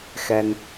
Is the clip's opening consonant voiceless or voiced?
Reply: voiceless